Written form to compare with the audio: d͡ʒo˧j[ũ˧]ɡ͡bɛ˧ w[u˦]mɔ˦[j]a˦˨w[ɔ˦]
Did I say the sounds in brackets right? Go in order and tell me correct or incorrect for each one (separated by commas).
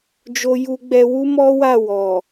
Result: incorrect, correct, incorrect, incorrect